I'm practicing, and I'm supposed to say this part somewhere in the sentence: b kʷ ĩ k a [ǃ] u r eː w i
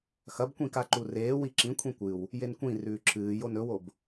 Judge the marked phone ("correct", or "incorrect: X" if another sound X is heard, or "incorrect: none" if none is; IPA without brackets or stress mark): correct